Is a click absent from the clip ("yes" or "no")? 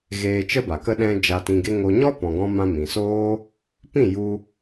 yes